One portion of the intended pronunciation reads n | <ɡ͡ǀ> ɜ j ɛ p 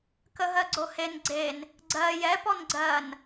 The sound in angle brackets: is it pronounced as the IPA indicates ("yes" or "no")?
yes